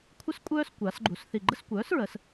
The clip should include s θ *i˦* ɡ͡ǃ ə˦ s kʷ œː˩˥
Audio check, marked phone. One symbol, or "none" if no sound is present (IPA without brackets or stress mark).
i˨˩